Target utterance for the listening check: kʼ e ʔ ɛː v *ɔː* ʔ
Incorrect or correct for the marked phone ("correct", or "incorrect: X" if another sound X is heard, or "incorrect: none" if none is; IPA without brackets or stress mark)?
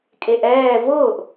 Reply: incorrect: ʊː